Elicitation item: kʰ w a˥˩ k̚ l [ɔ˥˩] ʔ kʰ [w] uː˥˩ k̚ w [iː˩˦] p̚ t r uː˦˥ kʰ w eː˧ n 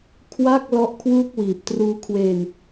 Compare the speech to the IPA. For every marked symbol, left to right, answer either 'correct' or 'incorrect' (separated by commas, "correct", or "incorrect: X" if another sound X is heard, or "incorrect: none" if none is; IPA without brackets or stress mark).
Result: correct, correct, incorrect: iː˨˩